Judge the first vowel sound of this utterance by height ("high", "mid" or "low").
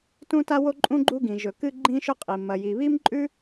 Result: high